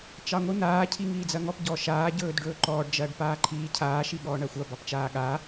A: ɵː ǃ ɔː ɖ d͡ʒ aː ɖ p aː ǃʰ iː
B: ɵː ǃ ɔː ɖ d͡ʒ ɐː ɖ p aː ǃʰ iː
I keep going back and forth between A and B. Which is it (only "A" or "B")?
B